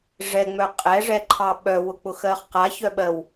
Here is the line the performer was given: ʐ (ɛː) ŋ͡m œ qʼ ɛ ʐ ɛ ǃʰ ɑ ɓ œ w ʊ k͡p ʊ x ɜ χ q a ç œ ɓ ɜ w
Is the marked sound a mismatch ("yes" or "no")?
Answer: yes